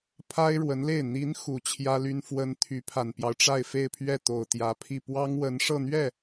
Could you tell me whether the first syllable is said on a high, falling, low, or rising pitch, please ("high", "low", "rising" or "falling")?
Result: high